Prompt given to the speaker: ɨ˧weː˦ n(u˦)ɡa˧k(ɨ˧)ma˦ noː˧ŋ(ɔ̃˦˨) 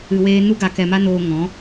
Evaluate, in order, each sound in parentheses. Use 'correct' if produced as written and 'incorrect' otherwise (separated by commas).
correct, incorrect, incorrect